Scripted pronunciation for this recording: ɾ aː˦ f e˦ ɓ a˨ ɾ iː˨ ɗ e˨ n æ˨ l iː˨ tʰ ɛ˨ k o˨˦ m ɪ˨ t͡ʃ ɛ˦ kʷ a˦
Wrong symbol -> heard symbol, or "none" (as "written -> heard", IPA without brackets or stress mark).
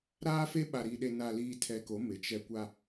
æ˨ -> a˨